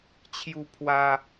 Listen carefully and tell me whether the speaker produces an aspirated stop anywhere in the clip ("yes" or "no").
yes